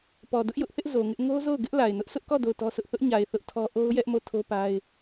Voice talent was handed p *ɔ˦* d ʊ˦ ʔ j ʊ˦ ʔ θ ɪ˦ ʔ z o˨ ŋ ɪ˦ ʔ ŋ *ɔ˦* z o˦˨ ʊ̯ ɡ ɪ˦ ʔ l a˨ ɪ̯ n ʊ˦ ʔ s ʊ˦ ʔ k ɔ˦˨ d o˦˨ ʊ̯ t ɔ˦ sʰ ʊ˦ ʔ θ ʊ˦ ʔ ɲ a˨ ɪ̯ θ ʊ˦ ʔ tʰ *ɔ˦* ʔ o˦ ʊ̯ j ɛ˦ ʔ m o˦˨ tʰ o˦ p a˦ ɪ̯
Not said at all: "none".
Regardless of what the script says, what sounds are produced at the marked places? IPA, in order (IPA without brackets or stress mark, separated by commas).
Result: ɔ˨, o˦, ɔ˦